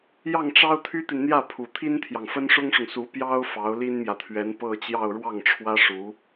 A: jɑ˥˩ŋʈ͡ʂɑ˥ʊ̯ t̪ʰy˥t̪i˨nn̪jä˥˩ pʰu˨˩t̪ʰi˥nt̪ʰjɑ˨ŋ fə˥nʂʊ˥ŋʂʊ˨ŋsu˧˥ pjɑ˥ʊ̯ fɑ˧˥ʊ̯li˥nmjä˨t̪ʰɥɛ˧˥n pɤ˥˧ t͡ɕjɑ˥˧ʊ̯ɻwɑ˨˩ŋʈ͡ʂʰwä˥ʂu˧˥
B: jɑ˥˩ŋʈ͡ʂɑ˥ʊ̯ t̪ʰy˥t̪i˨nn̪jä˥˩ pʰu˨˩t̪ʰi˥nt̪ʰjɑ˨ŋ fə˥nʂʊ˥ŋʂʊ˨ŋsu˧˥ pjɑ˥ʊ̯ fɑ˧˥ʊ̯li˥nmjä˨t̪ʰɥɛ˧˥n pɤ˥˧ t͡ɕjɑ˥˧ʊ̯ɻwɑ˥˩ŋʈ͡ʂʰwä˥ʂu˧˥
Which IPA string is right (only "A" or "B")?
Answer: B